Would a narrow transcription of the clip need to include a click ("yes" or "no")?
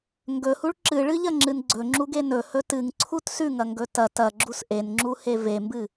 yes